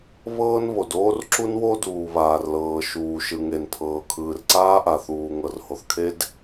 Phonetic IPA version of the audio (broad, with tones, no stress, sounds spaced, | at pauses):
β ɤː˥ n β o˩ d oː˥ r ǁ u˥ n w o˥ d uː˩ β aː˩ r l ɤː˩ ʃ uː˩ ʃ ɯ˩ ŋ e˩ n pʰ ɤː˩ kʰ ɯː˩ r ǀ aː˥ ʔ a˩ θ uː˩ ŋ ɤ˩ r h o˩ θ kʰ e˥ d